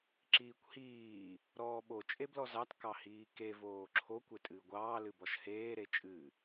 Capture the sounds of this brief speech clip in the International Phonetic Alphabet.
ǁ iː kʷ h iː | ɾ ɔː ɓ o t͡ʃʼ e b l ɔ z ɑ t k ɑ h iː k e v oː ǁʰ o kʷ e tʼ ɨː ɡʷ ɑː l ɨ b ɔ ʃ h eː ɾ e t͡ʃʼ ɨ

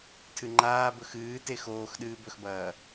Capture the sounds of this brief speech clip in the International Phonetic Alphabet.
tʰ ɨ ŋ͡ǃ aː b ɵ x ɨː t e x oː x ɗ ɨː b ɵ x b ɐː

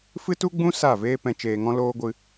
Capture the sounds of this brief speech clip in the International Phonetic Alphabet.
f ɨ˦ t u˦ ɡ͡b ũ˦ s a˦˨ v eː˦ p ɛ̃˧ t͡ʃ eː˧ ŋ ɔ̃˦ l oː˦ ɡʷ ɨ˧

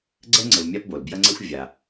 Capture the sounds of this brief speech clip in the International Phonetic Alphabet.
ɡ͡ǀ ɛ˥ ŋ͡ǀ ɘ˨ v mʲ a˦ p b o˩ l b j ɐ˦ ŋ͡ǀ ɛ˦ xʷ vʲ a˩

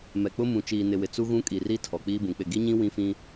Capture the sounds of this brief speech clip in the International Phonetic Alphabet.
m ɛ˨ k͡p ʊ˦ m ũ˨ t͡ʃ iː˨ n ɪ˨ w ɪ˨ t͡s u˦ ɣ ũ˦ kʼ i˨ r i˦ tʰ ɔ˨ k͡p iː˦ b ũ˨ k͡p ɪ˦˨ ɡ i˦ ɲ ĩ˦ w ĩ˦ f ĩ˦

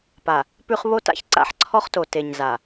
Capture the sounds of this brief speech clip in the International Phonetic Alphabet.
p a˨ | p ʉ˦ χ β o˦ t a̰˦ ç ǀ a̰˦ ħ ǀʰ ɔ˦ χ t o˨ t e˨ ɲ z a˨

